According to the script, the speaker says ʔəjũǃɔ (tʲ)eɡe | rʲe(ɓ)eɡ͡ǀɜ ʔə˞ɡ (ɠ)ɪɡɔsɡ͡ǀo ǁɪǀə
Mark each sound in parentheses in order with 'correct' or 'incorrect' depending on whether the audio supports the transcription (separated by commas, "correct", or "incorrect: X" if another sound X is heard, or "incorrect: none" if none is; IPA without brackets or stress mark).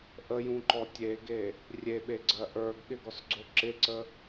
correct, correct, correct